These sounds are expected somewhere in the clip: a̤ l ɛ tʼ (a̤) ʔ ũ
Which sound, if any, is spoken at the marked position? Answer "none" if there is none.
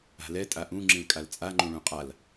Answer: a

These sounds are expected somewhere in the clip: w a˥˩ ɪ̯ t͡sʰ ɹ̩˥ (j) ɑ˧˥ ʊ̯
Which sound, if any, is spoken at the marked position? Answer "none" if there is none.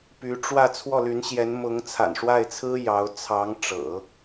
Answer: j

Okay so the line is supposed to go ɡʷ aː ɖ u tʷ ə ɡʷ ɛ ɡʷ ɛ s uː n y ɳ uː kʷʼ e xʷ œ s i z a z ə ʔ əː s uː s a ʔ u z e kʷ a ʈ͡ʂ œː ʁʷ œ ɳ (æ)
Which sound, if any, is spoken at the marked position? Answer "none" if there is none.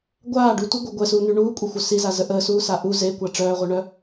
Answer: œ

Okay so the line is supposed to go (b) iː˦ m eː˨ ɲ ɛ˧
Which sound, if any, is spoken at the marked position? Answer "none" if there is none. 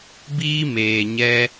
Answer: b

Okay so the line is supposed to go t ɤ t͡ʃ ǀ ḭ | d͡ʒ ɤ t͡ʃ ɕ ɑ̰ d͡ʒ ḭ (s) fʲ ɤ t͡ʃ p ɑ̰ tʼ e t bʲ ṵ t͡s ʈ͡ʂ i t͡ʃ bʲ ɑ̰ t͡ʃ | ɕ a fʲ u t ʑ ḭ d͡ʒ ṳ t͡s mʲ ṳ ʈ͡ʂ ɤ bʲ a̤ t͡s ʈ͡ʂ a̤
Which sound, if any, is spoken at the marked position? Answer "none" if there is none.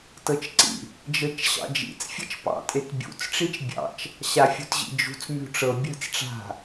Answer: t͡s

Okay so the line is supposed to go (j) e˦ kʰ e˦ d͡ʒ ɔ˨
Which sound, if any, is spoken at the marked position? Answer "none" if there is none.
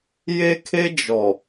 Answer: j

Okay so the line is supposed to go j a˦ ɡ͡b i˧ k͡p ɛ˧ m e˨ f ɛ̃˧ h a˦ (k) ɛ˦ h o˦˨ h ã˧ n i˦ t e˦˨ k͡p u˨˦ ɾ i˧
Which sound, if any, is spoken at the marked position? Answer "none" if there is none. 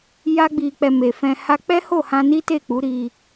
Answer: k͡p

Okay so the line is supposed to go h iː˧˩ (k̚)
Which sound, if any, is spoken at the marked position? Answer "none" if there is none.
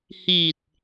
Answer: t̚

